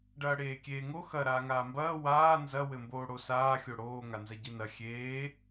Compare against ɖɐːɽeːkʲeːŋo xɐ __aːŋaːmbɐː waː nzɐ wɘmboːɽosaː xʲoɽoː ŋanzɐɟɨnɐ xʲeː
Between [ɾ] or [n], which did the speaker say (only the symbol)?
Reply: ɾ